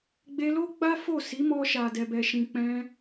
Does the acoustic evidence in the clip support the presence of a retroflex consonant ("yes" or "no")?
no